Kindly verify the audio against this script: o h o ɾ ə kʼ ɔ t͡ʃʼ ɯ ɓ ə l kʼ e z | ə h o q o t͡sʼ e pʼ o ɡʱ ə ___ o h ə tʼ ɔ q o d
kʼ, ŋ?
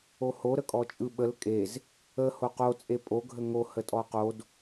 ŋ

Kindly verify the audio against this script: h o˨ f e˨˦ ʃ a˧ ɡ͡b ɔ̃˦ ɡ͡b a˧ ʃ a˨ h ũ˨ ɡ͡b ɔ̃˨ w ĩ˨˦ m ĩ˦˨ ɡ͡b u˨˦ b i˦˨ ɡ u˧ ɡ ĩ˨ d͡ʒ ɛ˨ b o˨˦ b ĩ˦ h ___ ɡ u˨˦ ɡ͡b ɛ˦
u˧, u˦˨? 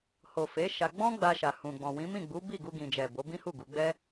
u˦˨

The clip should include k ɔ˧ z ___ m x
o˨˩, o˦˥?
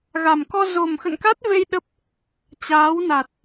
o˨˩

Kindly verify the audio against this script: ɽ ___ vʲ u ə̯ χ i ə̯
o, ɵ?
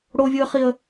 o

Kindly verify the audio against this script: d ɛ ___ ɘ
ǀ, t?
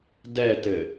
t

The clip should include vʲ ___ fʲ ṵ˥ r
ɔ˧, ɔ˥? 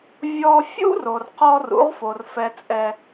ɔ˧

